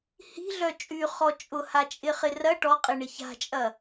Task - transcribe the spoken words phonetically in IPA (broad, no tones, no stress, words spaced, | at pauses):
hi̤ ɮœt͡ʃʼyχɔ t͡ʃʼʊhat͡ʃʼɪ χɪrɐ ʈɔqʼɪɳɪ ça̤t͡ʃʼɐ